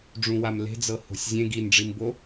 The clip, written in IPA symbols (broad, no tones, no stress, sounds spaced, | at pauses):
ɖ͡ʐ ũ w a m l e̤ d͡z ɤ h o̤ sʲ zʲ ẽ ɡ i n ɖ͡ʐ i m b o